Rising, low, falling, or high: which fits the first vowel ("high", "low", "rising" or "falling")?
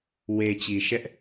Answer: low